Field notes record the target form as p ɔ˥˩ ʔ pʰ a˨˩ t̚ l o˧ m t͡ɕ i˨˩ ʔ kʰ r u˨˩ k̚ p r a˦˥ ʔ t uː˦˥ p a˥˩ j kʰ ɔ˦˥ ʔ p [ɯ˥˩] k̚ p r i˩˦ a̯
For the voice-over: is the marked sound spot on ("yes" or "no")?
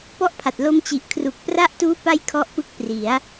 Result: no